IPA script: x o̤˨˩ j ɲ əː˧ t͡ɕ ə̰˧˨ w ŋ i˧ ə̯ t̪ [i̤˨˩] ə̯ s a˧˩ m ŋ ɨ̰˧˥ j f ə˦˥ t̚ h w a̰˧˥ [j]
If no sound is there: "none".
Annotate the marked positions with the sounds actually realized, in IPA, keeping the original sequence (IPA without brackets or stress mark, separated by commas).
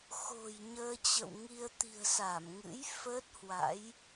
i̤˨˩, j